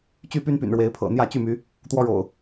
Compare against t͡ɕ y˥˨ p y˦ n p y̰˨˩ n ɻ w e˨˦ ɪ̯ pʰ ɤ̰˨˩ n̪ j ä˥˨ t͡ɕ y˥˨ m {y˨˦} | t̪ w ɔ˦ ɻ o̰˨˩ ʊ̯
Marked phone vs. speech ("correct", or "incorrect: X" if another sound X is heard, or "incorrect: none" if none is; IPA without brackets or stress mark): correct